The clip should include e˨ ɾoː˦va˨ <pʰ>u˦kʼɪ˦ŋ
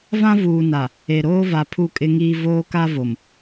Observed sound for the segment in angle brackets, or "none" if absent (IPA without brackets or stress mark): pʰ